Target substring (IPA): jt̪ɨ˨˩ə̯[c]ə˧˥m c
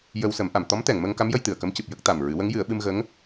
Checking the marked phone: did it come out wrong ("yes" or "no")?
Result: yes